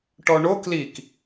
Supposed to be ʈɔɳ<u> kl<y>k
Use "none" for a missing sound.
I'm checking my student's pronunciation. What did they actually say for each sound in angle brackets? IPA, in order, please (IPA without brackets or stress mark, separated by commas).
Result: o, i